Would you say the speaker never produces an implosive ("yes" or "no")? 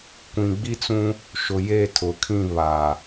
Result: yes